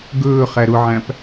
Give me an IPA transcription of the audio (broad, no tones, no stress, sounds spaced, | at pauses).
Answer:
ɡ ɵː χ æ ɾ ʊ ʕ æ̃ p